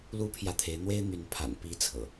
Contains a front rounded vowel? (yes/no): yes